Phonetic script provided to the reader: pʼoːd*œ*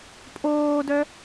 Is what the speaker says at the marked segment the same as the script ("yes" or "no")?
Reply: yes